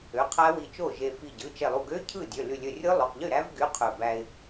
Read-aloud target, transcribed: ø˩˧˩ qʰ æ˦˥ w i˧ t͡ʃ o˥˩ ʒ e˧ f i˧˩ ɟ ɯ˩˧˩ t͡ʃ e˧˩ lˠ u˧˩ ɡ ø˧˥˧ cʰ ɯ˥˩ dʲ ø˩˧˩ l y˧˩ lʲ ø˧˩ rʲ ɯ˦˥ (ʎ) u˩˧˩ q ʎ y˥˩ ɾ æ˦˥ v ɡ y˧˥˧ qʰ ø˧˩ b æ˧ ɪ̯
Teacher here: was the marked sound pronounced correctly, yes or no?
no